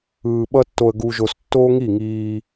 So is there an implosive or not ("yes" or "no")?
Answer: yes